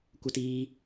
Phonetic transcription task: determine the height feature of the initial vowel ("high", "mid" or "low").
mid